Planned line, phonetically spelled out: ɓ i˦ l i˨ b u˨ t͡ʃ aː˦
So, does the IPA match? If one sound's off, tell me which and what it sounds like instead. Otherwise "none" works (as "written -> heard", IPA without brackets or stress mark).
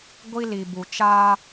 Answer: ɓ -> ɡʷ